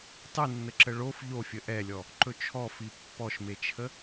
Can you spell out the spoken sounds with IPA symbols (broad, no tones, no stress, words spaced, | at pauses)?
tˤɨnːəǁə ɭof ʎofʲə ʔɛlʲɔ | ǃɵt͡ʃʰɔfi pːɔʃmet͡ʃʰə